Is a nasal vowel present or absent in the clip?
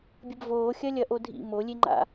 absent